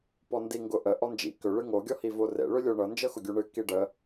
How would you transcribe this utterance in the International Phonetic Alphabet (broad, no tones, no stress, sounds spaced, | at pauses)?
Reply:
p ɔ n d i ŋ ɡ ʊ ʔ ə ʔ ɔ n d͡ʒ ḭ k ʏ ɭ ɨ ŋ o ɡʲ ɔ h i v o r ḛ ɭ ʏ lʲ o ɳ ɤ n d͡ʒ ɤ x ʊ ɡʲ u ɳ ɨ k i ɖ ə